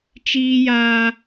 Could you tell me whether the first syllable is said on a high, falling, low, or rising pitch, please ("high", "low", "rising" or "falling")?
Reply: high